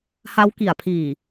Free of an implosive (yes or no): yes